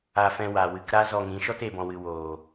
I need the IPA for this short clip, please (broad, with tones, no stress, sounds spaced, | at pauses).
a˧ f ɛ̃˧ w a˨ w ɨ˧ k ɾ a˦ z ɔ˧ ŋ ĩ˨˦ ʃ ɔ˦ t e˨ b ɔ̃˨ w ɨ˨ w oː˨